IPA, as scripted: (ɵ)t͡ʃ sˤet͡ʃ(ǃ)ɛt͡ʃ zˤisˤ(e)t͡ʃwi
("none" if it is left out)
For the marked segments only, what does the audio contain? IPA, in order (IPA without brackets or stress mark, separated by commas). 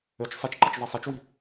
ø, ǃ, ɛ